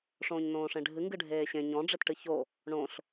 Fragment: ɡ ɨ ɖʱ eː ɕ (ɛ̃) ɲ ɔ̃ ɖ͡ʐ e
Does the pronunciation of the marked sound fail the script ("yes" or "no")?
yes